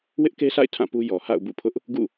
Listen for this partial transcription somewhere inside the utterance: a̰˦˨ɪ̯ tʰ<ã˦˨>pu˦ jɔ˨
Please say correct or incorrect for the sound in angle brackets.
correct